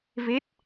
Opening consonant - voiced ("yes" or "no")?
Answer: yes